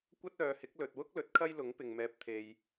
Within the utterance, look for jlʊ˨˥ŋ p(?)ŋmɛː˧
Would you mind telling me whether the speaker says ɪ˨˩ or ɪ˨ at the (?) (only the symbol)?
ɪ˨